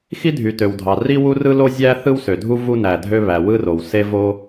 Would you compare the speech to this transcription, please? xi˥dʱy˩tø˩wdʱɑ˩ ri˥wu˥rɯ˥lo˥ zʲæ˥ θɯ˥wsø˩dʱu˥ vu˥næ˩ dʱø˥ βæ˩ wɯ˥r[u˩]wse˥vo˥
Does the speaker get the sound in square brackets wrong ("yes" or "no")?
yes